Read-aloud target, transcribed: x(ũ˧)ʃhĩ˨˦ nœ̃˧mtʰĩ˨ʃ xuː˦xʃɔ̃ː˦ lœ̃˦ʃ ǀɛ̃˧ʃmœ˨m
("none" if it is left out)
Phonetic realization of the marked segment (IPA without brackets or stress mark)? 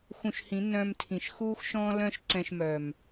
ũ˧